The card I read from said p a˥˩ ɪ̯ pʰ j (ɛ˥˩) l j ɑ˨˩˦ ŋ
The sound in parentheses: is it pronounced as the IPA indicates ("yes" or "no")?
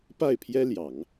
no